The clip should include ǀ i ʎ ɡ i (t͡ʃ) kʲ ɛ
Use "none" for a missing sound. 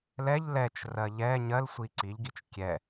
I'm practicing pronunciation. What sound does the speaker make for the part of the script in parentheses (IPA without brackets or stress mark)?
t͡ʃ